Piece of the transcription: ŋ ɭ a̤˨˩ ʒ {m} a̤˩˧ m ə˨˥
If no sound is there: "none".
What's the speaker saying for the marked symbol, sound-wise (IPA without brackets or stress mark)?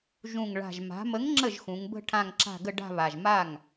m